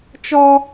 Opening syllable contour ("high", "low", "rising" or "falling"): high